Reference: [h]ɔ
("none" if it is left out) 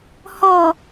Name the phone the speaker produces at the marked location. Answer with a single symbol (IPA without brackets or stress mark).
h